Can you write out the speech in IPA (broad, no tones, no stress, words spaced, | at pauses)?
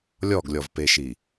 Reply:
lʲɔɡlʲɔvpeʃi